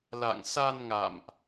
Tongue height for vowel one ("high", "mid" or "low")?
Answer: low